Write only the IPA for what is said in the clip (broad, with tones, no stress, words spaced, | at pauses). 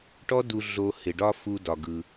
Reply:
ʈɔ˦du˧ ɮo˧ hɪ˨ɖɒ˦ fu˧ dɒ˧ɡɯ˧